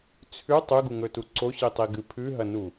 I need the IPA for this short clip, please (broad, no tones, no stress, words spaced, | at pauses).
t͡sʰʉ tˤʉɡuŋɵtu ǀoɕitˤiɡɨ pʰʉɦɐnu